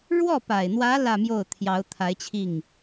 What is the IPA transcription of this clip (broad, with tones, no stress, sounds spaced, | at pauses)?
ɻ w ɔ˥˩ p a˨˩ ɪ̯ n̪ w ä˧˥ l ä˥˧ m j o˥˩ ʊ̯ t̪ʰ j ɑ˧˥ ʊ̯ t̪ʰ a˧˥ ɪ̯ t͡ɕʰ i˥˩ ŋ